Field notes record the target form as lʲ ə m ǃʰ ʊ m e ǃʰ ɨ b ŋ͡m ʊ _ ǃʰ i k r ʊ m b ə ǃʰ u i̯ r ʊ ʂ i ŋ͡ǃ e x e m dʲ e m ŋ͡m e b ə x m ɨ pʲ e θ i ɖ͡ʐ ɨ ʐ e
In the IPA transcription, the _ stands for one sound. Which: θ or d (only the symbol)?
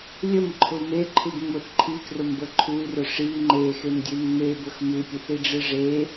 θ